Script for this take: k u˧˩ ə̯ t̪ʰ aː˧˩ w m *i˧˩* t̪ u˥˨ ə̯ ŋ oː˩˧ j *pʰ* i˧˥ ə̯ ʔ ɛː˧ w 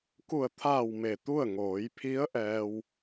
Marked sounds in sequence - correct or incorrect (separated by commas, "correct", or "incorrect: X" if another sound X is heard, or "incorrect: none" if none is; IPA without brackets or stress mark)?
incorrect: e˧˩, correct